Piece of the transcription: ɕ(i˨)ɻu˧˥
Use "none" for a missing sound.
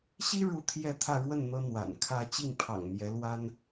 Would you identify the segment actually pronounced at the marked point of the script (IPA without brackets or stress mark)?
i˥